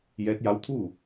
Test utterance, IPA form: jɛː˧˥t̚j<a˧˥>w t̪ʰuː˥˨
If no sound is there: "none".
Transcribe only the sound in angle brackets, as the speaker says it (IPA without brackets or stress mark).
a˧˥